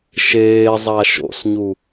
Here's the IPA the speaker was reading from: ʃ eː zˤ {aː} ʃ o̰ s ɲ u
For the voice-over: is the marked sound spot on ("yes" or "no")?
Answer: no